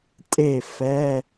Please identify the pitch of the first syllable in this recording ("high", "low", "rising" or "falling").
falling